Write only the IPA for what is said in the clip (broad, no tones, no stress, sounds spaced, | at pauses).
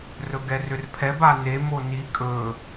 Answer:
r ɵ ɡ ɛ r ʏ r pʰ ɛ b a n e m o n i kʼ ɵ